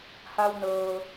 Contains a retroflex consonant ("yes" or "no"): no